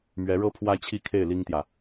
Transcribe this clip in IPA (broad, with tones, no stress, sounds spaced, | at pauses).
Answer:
m ɥ ɛ˧˥ ɻ ɤ˥ pʰ w ä˥ t͡ɕʰ i˥˧ kʰ e˥˩ ɪ̯ l i˥ ŋ t̪ j ä˨